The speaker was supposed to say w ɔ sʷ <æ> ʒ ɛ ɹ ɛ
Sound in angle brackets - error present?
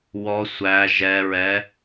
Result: no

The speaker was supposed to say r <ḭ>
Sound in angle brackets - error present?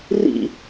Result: no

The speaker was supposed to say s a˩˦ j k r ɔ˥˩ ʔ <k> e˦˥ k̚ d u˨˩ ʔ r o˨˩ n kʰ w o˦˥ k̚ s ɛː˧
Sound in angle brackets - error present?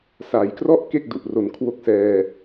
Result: no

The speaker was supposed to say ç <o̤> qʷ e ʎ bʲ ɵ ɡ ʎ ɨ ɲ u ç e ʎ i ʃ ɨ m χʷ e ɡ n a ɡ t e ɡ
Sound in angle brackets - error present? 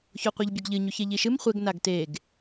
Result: yes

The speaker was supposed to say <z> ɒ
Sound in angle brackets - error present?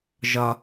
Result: yes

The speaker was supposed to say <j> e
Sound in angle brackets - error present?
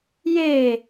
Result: no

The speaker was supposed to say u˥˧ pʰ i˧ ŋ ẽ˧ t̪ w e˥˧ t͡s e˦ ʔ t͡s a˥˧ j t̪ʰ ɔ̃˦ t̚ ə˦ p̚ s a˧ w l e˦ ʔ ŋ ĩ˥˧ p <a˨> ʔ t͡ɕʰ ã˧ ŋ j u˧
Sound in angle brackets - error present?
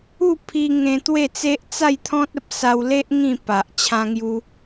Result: no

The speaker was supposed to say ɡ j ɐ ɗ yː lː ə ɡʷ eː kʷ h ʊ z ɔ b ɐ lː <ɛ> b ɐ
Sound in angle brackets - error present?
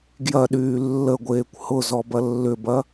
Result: yes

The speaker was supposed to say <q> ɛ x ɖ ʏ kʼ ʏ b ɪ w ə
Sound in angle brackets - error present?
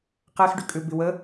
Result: no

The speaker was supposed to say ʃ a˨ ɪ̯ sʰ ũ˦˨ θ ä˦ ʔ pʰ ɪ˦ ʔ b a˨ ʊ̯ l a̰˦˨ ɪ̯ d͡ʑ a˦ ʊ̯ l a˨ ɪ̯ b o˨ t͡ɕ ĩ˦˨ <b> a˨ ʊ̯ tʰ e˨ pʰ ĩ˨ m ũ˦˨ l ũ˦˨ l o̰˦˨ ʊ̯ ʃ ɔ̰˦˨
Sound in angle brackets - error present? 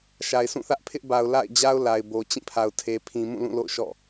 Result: yes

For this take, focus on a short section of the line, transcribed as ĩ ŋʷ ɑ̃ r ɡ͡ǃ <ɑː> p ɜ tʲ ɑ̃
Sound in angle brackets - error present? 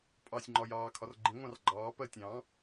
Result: no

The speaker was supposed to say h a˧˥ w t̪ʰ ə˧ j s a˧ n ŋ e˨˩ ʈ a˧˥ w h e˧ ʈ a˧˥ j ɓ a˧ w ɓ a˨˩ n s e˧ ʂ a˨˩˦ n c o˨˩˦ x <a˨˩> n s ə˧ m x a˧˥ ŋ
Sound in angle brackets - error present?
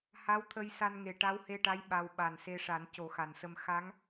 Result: no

